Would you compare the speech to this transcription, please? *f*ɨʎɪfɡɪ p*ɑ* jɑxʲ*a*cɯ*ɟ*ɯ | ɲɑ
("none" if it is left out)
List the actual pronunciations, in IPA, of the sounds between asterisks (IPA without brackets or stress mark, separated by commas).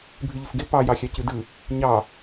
bʱ, ɑ, ɑ, d